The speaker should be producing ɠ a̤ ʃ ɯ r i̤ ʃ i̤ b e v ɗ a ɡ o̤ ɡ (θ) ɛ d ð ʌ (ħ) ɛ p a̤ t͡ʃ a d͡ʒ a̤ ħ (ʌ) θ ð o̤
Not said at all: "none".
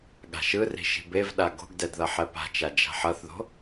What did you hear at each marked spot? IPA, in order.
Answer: d, ħ, ʌ

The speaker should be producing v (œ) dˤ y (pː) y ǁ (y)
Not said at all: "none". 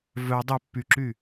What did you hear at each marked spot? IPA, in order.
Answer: œ, pː, y

